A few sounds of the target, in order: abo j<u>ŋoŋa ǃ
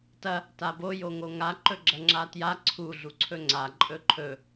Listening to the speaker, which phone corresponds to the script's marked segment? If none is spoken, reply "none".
o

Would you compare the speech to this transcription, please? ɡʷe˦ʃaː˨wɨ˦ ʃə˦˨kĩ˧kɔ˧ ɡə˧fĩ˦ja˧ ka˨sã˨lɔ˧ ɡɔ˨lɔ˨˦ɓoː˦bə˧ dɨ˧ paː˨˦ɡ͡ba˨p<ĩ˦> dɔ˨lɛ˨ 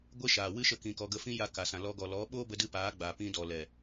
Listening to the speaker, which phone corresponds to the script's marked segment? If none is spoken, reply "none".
ĩ˧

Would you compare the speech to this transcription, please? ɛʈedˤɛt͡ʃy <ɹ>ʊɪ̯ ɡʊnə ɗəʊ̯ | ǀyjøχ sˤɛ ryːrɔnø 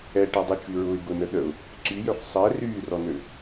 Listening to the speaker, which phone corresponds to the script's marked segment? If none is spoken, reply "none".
ɹ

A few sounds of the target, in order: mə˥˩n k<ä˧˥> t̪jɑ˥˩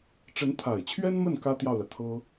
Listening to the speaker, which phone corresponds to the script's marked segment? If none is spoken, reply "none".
ä˥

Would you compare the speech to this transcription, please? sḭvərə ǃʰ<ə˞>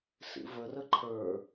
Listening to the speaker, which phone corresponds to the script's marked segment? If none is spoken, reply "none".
ə˞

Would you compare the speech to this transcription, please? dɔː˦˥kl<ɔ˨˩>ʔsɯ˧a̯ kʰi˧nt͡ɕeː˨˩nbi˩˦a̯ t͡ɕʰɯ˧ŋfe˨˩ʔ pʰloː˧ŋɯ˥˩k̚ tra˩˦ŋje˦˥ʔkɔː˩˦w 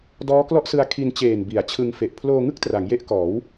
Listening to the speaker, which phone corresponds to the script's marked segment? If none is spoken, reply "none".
ɔ˥˩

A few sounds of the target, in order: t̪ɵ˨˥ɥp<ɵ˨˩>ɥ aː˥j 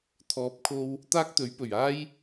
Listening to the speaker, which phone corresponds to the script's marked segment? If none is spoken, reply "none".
ɵ˨˩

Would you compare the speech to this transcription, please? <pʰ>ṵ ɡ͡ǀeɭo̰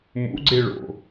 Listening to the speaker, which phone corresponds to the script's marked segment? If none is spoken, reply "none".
m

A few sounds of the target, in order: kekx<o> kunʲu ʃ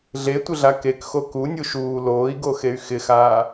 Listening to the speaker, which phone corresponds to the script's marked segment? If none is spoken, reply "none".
o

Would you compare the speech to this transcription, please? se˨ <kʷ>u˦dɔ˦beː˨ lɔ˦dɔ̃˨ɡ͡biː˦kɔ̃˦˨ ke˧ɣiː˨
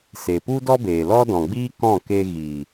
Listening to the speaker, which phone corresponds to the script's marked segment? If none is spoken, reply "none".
p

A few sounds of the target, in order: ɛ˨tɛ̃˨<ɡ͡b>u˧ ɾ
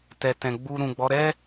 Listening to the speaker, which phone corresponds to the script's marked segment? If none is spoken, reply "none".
ɡ͡b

